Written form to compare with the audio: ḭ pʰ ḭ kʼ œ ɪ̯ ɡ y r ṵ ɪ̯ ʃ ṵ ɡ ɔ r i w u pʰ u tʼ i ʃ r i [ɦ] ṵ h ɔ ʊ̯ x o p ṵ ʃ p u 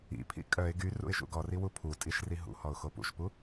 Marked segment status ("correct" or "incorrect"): correct